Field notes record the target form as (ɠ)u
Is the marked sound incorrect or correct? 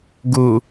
incorrect: ɡ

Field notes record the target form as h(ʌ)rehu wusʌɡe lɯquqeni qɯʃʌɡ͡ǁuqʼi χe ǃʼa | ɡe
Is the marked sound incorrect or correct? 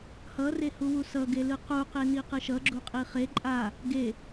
correct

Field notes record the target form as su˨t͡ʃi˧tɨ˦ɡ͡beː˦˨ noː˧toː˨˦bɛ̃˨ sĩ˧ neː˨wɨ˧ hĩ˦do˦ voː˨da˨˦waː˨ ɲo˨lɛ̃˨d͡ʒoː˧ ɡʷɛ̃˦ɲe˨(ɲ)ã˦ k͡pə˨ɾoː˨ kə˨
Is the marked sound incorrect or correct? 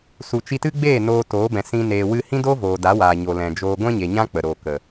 correct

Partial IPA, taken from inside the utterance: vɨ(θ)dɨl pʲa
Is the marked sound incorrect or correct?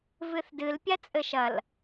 correct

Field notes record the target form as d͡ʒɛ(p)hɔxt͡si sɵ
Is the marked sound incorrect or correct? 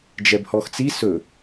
incorrect: b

